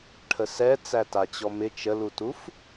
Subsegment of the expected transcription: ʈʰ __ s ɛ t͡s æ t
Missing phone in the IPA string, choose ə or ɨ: ə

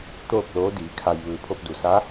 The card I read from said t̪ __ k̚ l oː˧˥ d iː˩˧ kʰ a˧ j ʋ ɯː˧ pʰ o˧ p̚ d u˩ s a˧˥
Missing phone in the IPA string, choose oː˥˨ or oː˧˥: oː˥˨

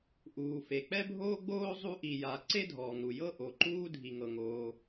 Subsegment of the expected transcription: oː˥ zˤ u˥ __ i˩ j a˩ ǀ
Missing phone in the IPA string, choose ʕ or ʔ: ʔ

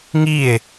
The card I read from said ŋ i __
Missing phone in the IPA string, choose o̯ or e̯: e̯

